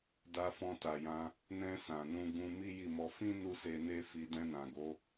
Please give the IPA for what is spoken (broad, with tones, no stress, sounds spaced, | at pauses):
d a˧ f ɔ̃˧ t a˨ j ã˧ | n ɛ̃˧ s ã˨ n ũ˧ ɡ ũ˧ m i˦ j i˦˨ m ɔ˧ f ĩ˦ n u˧ s e˧ n e˦ f i˧ d ɛ̃˧ n ã˨ ɡ o˨˦